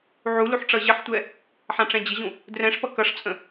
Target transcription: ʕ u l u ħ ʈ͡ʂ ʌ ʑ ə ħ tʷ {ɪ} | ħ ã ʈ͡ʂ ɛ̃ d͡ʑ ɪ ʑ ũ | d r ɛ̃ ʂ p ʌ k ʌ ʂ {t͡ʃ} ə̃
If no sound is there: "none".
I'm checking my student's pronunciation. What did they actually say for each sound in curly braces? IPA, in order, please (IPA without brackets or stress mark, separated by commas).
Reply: ɛ, t͡sʼ